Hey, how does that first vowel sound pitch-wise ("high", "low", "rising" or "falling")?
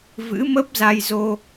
rising